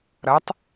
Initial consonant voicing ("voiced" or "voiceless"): voiced